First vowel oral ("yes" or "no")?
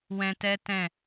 no